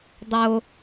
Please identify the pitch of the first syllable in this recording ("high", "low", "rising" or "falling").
high